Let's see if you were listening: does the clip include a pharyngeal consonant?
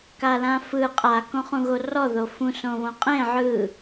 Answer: yes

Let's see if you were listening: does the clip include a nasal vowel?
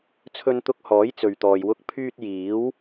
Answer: no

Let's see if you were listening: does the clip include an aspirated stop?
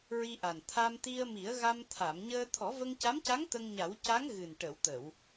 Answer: yes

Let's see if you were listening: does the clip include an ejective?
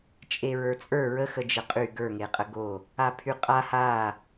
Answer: yes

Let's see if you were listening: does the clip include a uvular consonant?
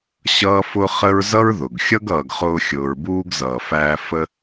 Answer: yes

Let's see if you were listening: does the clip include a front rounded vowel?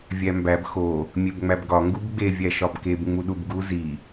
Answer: no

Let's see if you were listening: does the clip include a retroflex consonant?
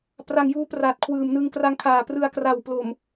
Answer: no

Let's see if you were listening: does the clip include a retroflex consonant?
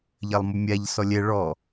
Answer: yes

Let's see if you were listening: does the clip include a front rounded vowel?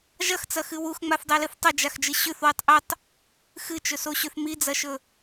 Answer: no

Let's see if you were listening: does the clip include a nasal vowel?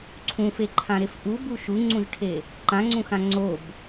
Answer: yes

